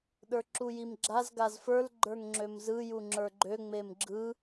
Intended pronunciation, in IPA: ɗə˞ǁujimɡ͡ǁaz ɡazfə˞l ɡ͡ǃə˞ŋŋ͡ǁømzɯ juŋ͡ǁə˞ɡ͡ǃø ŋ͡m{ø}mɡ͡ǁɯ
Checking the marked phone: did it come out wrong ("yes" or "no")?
yes